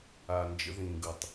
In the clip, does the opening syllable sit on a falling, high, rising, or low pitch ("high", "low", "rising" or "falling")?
low